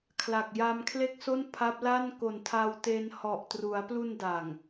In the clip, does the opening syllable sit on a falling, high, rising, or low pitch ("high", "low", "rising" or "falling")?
low